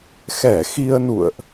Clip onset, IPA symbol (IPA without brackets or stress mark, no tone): x